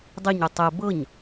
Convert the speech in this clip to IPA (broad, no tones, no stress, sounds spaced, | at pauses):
dˤ i ɲ y tˤ ɛ b ɤ ɲ